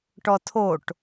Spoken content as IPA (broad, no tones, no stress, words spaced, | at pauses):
ʈɔtʰoʈ